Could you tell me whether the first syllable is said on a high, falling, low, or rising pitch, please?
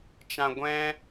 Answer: high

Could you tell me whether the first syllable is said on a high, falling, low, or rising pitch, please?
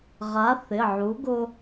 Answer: rising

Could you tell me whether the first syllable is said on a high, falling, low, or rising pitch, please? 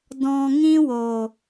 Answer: low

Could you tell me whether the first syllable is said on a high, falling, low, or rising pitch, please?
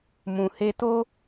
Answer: low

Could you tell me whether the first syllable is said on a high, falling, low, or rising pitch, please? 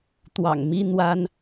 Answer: low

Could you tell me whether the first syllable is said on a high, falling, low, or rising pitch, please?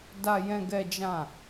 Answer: high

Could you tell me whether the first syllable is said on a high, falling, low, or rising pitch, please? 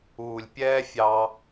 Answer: low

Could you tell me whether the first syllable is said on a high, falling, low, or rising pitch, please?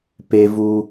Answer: low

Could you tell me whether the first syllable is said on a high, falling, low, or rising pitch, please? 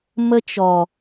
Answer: high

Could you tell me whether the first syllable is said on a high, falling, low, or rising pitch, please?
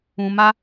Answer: low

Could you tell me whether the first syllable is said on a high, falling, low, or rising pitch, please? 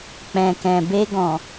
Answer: low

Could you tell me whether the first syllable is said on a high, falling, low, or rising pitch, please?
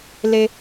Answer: low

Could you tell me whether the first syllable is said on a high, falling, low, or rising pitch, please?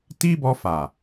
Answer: high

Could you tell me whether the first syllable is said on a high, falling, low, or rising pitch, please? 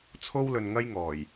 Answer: high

